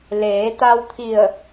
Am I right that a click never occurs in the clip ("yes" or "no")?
yes